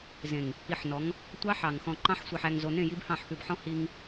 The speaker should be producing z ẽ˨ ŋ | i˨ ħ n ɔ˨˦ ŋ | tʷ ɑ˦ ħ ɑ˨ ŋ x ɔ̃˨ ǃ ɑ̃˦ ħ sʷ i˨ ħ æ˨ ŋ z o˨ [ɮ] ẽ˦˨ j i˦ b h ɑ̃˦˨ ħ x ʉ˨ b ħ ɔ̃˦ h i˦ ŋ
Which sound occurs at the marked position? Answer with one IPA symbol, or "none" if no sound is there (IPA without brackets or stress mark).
n